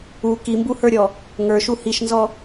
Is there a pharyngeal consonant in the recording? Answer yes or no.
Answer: no